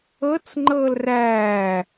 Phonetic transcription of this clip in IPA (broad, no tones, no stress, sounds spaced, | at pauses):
ɤ t͡s ŋ͡ǃ ɤː l r æː